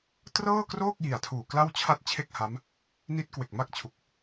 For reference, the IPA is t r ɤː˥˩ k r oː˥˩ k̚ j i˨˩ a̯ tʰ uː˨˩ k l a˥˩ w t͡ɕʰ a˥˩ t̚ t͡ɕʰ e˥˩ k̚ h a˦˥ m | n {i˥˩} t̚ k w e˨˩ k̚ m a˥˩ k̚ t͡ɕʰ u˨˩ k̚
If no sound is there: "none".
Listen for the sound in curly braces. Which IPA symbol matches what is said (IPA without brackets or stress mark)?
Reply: i˦˥